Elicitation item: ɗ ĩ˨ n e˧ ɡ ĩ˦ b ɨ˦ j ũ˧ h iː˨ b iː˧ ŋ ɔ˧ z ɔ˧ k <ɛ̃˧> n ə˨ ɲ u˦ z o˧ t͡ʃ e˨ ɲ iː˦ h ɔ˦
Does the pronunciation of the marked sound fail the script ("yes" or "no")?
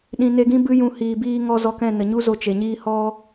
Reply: yes